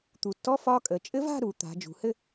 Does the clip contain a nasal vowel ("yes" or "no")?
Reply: no